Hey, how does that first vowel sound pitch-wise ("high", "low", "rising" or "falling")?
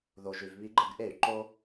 low